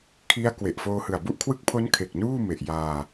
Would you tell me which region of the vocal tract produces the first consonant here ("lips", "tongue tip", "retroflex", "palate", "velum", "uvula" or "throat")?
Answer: velum